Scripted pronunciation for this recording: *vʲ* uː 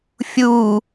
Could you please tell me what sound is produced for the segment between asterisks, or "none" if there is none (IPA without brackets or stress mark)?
fʲ